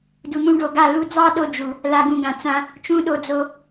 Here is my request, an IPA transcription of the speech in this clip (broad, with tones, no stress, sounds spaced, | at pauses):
d u˨ n̪ ũ˧ ɖ o˨ ɡ a˦˨ l u˧ d͡z ɑ˦ ɗ o˧ d͡ʒ u˨ | l a˧ ɡ ũ˧ ɡ ã˨ t͡s ã˦ | t͡ʃ ũ˦ ɗ o˧ d͡z o˧